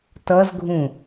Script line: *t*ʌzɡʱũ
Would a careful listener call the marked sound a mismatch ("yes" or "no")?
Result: no